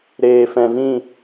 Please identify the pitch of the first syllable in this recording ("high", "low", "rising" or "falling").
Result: low